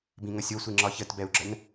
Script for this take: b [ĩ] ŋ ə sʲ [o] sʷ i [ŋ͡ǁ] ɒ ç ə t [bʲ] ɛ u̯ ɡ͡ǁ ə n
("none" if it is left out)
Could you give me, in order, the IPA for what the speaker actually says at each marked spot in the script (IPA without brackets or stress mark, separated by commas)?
ĩ, o, ŋ͡ǁ, b